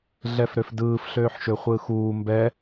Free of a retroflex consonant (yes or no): yes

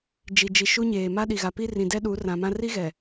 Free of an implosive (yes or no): no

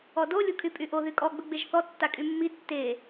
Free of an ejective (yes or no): no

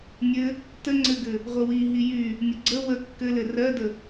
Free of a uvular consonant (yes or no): no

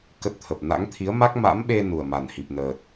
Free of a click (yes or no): yes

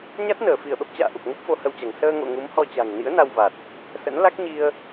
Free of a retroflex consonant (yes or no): yes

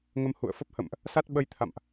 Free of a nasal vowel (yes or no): yes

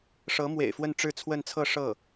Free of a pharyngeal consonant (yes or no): yes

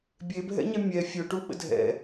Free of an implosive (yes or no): no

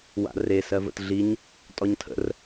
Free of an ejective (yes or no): no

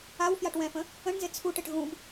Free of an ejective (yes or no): yes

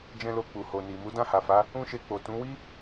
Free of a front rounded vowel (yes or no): yes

